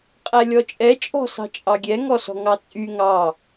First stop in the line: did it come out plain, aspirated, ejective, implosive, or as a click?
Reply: ejective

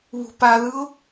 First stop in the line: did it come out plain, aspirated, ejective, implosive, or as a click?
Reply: plain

